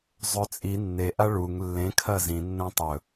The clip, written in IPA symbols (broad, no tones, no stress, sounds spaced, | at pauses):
zˤ ɵ t͡sʼ i nː e ʔ a ɭ u ŋ lː ẽ kʰ ɐ z ĩ nː ɐ̃ tˤ ɵ